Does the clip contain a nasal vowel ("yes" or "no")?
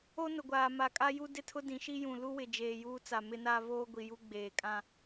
yes